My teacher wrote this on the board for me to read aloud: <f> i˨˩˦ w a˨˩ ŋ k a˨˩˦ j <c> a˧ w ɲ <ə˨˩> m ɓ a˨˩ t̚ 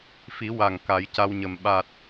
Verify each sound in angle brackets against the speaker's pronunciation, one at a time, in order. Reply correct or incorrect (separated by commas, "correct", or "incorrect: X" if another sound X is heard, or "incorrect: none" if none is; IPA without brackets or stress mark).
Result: correct, correct, correct